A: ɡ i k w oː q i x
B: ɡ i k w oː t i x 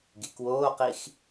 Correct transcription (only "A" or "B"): A